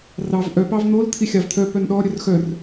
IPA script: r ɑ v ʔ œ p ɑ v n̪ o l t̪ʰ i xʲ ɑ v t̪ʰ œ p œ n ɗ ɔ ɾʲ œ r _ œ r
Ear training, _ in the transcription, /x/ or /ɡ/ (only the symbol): x